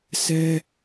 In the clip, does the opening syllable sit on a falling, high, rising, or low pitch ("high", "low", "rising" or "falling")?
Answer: high